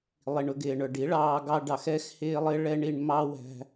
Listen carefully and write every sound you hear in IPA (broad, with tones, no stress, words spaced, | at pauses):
lˠi˨ɳʊ˧ɡɪː˨ɳə˞˨ ɖi˨˦ ɭɑː˧ɡɑ˧ɖɑ˨x ɛ˦xhɪː˦lˠɪ˦ ɭɛ˦ɳi˧ɳmɑ˦ wæ̤˦